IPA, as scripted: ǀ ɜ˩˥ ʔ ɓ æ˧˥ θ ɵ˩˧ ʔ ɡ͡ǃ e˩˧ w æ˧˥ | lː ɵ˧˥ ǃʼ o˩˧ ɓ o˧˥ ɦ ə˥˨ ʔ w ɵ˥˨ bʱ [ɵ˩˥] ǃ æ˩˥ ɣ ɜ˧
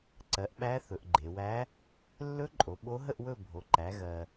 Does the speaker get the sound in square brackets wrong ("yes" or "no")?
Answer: yes